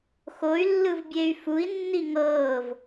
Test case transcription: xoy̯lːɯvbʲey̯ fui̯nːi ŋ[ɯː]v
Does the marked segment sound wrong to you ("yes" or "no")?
yes